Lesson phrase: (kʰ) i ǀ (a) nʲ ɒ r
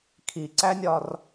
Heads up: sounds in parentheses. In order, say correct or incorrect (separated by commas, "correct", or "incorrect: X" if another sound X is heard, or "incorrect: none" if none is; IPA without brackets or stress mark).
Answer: correct, incorrect: æ